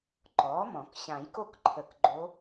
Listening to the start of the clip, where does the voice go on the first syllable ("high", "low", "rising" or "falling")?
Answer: rising